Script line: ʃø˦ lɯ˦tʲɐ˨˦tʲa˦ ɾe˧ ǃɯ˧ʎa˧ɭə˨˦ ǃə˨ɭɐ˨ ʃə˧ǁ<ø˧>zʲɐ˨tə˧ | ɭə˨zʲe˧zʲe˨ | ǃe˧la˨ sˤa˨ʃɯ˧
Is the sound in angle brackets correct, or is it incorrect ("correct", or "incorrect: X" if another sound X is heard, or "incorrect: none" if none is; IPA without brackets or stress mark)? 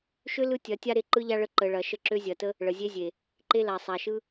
correct